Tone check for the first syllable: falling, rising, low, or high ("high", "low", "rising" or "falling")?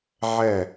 falling